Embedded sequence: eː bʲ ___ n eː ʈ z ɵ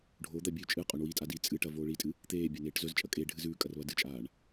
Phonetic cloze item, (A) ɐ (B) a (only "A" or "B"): B